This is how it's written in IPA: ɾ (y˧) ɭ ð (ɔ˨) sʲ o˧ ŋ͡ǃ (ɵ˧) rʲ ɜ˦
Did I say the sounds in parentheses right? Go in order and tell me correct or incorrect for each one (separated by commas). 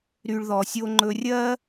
correct, correct, correct